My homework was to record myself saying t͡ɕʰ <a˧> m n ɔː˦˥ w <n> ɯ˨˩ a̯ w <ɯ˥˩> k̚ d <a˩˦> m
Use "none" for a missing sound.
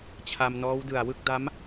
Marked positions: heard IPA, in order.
a˧, d, ɯ˥˩, a˦˥

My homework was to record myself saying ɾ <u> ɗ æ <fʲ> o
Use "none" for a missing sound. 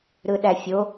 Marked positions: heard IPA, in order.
ɯ, fʲ

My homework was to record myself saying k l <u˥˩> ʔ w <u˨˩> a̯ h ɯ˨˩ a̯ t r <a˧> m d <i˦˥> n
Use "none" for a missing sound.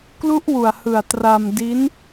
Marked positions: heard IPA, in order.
u˦˥, u˨˩, a˧, i˦˥

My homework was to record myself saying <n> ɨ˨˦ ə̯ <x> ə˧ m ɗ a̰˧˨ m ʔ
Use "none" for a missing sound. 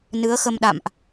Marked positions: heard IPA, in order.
n, x

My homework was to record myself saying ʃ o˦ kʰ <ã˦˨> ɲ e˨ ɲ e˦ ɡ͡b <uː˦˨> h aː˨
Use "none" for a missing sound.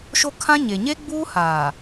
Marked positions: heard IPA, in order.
ã˦, uː˦

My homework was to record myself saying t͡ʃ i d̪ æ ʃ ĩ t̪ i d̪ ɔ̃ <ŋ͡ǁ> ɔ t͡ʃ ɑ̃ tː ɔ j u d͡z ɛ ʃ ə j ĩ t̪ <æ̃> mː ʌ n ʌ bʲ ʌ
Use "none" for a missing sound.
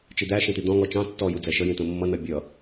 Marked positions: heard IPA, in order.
ŋ, ə̃

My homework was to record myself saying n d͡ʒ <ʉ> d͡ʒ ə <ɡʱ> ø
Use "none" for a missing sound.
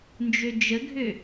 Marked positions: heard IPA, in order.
ø, ɡʱ

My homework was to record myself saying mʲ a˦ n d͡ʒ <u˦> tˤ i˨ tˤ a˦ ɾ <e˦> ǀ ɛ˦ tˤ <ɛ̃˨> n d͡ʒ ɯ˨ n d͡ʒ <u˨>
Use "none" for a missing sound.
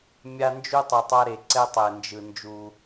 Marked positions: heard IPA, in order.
u˦, e˨, ɛ˨, u˦

